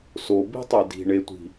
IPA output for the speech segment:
s o b i̤ tˤ e d i̤ ɳ e tʷ i̤

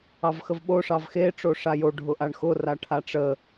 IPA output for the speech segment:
ɑ v x ə v ɓ o ʂ ɑ v x e ʈ͡ʂ o ʂ a j o ɖʱ ʊ ʔ a ɳ x ʊ r a ʈʰ a ʈ͡ʂ ə

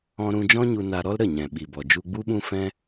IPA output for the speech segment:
ɔ̃˧ ɾ ũ˧ d͡ʒ ɔ̃˦ ɲ u˧ n a˧ ɾ ɔ˦ l ɾ ə˦˨ ɲ ɛ̃˨ ɓ i˨ b ɔ˨ d͡ʒ u˧ ɡ͡b u˦ ɓ ũ˦ f ɛ̃˦

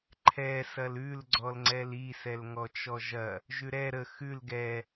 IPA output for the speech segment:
ǃʰ ɛ s ɐ l ʉ l ɡ͡ǀ ɔ l ŋ͡ǀ ɛ l i s ɛ l ŋ ɔ t͡ʃ ɔ ʒ ɐ | ʒ ʉ ɾ ɛ ɾ ə x ʉ l ɡ ɛ

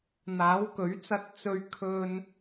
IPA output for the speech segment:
n̪ aː˨˥ w k ɵ˨˥ ɥ t͡s ɐ˧ t̚ t͡s ɵ˨˧ ɥ kʰ ɵ˨ n

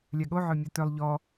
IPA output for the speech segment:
lʲ a ɠ o ʕ œ mʲ o t œ lˠ ʎ ɔ

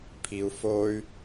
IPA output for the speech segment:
pʰ i u̯ f o y̯

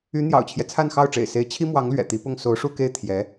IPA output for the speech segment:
y˧˥ n̪ j ɑ̰˨˩ ʊ̯ t͡ɕʰ j ɛ˦ t͡sʰ a˥˧ n x ɑ˥˩ ʊ̯ ʈ͡ʂ ḛ˨˩ ɪ̯ s e˧˥ ɪ̯ t͡ɕʰ i˥ m w ɑ˧˥ ŋ l ɥ ɛ̰˨˩ t̪ i˧˥ p ʊ˥˩ ŋ s o˧˥ ʊ̯ ʂ u˥˧ k e˥˩ ɪ̯ t̪ʰ j ɛ˧˥

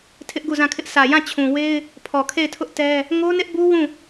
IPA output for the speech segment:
tʰ ɪ˦ ʔ ɡ u˦˨ z ã˦˨ kʰ ɪ˦ ʔ s ä˨ j ã˦˨ t͡ɕʰ ũ˨ w e˦ ɪ̯ | pʰ ɔ˨ kʰ e˦˨ ɪ̯ tʰ ʊ˦ ʔ t ɛ˦ | ŋ o˦ n ɪ˦ ʔ b u˦ w ũ˦˨

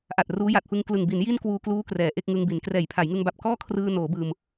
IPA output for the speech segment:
ʔ a˨˩ t̚ r uː˦˥ j a˨˩ t̚ f ɯ˧ ŋ k l ɯ˨˩ ŋ b i˩˦ n j i˥˩ n k w uː˧ k l uː˦˥ k r ɛː˩˦ ʔ e˥˩ k̚ ŋ ɯ˧ ŋ b i˩˦ n k r ɛː˨˩ j pʰ a˩˦ j ŋ ɯ˧ ŋ b a˨˩ p̚ k ɔː˥˩ kʰ r ɯː˧ n oː˩˦ b ɯː˧ m

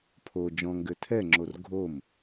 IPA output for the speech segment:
pʰ o d͡ʒ ɔ̃ ŋ ɡ ɘ tʰ ɛ ŋ͡ǁ o r ɡʱ o m

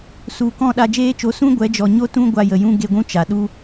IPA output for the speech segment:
s u˨ k ɔ̃˦˨ ɗ a˧ d͡ʒ eː˦ t͡ʃ o˧ s ũ˦ ɡʷ ɛ˨˦ d͡ʒ ɔ˨ ɲ o˦ t ũ˦ ɡʷ a˧ j ə˨ j ũ˦ ɡ e˧ ɡʷ ũ˦ t͡ʃ a˨ ɗ u˦

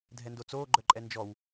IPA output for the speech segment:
dʱ ɛ n d o t͡s oː ɡ͡ǃ œ ǃʼ ɛ n d͡ʒ ɔ w

